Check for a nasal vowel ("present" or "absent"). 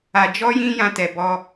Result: present